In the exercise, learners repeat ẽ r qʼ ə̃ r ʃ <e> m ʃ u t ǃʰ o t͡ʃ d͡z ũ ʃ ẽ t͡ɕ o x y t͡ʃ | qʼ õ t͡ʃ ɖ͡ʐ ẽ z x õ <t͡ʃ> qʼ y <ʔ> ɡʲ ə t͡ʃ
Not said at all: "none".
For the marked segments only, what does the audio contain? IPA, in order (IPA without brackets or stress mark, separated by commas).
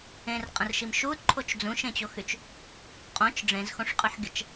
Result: i, ʂ, ħ